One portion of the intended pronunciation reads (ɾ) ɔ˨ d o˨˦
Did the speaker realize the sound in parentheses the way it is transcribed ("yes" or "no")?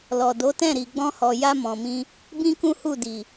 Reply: no